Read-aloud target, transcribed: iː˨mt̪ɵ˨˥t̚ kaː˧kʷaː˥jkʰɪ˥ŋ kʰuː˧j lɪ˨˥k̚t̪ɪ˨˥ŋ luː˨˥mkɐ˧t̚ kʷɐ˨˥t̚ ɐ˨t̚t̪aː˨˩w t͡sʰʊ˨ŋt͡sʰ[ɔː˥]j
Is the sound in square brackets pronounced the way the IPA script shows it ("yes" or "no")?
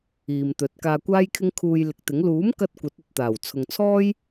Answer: yes